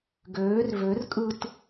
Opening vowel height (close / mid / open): mid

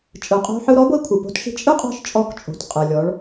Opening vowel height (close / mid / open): close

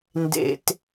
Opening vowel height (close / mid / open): mid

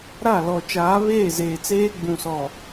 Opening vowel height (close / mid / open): open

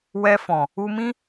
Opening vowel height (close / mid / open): mid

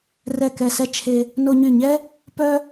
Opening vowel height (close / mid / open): mid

